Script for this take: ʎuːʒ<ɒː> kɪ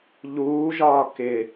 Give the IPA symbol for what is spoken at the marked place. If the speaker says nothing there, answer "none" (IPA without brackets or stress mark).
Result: ɒː